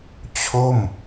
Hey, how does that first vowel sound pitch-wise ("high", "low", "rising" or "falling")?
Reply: falling